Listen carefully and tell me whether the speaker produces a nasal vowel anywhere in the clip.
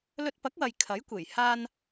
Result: no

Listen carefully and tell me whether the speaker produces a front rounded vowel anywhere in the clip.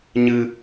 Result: no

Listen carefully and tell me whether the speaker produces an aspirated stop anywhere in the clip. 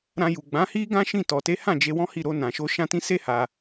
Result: no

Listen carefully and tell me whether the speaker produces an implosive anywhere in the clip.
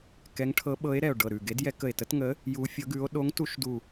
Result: yes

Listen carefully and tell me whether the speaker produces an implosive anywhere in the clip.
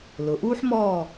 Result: no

